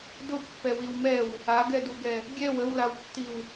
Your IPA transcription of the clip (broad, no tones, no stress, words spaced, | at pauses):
dʊpːɛwiw mɛw | aɡɛduɡɛ | ɡʲɛw əwlawtːiw